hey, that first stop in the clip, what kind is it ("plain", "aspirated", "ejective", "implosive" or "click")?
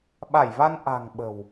implosive